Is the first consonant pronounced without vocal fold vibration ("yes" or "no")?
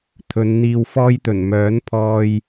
yes